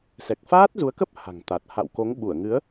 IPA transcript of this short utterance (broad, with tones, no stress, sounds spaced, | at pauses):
s ɛ˨˩ k̚ f aː˦˥ t̚ z u˨˦ ə̯ k ə˦˥ p̚ h a̤˨˩ ŋ t̪ a˨˩ t̚ h a̰˧˨ w k o˨˦ ŋ ɓ u˧˩ ə̯ ŋ ɨ˨˦ ə̯